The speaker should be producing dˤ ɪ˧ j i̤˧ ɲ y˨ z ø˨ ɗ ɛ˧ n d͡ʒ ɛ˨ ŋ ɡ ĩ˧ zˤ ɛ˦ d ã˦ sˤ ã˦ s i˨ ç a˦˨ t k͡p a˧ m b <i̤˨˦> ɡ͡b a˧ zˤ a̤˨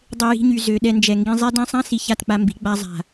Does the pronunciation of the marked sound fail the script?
no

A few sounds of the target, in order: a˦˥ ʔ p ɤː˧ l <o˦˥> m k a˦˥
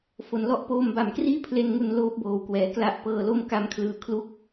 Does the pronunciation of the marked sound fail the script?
yes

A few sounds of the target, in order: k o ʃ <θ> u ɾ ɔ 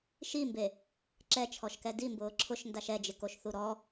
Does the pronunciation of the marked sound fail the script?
no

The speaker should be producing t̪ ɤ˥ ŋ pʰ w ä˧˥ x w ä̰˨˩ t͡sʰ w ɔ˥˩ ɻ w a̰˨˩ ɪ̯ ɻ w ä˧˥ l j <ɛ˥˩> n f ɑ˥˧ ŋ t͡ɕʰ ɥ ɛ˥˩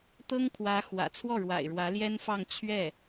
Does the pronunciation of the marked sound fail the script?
yes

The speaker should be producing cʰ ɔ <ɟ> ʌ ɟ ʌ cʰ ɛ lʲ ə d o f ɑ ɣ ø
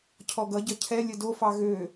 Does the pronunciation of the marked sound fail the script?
yes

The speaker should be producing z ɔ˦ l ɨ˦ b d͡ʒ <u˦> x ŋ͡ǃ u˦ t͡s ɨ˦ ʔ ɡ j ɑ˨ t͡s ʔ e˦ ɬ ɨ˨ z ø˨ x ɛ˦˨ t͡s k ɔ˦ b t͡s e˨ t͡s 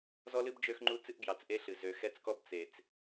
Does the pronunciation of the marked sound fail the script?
yes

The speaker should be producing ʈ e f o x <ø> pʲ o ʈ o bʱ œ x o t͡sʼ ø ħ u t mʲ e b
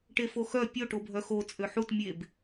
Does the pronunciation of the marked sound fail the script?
yes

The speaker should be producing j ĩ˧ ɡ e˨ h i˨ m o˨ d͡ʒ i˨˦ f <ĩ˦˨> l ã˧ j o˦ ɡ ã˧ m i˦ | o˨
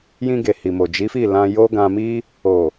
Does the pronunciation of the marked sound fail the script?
yes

